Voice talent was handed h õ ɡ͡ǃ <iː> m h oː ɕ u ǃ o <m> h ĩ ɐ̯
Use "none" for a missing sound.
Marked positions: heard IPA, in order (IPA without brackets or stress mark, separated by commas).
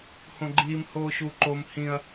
iː, m